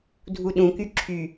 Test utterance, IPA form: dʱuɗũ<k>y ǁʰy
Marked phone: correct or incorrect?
correct